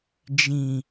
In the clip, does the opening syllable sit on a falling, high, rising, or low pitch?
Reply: low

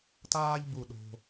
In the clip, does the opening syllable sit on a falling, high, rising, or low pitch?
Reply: high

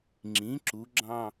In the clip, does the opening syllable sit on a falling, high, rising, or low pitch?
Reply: rising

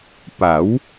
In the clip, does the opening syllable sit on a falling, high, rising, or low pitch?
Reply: rising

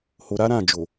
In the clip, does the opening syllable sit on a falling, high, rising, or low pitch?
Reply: low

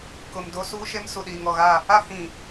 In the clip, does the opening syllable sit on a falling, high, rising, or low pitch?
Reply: low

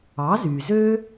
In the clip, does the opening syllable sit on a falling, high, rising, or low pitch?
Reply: rising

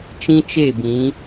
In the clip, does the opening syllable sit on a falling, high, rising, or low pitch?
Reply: high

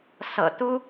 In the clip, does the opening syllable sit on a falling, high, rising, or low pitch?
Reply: low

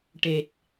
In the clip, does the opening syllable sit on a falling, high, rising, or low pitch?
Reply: low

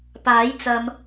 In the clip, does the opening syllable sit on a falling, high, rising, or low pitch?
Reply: rising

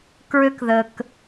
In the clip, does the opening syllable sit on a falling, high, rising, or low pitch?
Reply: high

